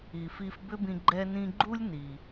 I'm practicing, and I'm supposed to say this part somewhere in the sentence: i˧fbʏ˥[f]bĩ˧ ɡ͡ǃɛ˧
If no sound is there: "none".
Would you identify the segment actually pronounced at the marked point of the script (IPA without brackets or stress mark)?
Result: none